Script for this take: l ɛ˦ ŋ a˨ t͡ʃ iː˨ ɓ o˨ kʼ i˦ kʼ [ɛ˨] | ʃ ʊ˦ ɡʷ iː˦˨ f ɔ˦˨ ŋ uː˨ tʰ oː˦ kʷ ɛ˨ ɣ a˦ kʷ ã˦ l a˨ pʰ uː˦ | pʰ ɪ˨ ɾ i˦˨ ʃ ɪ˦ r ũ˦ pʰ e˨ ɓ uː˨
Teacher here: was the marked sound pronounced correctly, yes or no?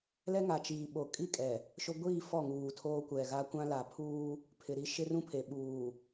yes